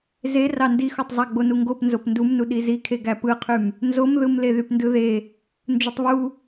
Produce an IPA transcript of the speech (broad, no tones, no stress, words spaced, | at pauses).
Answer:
ze rɑndixotˤ zˤæɡ͡bonuŋɡop nzopndumnu ɗizikʰe ɡæpɯqʰym | nzomðɯmle ðypndɯðe | nd͡ʒutˤβu